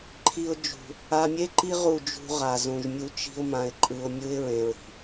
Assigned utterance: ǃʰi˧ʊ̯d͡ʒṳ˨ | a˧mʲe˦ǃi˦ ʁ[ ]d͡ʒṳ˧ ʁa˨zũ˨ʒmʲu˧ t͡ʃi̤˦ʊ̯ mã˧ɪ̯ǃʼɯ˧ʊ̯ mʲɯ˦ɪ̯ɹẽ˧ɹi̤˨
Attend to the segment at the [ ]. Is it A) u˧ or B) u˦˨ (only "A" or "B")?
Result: B